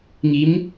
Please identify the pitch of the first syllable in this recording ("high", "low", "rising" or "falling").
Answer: rising